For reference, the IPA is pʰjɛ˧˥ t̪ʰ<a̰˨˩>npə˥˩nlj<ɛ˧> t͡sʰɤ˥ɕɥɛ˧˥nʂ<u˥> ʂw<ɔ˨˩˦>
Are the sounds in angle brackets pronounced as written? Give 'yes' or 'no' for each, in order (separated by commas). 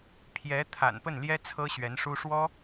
yes, no, yes, no